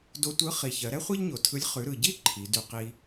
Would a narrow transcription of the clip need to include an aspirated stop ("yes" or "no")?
yes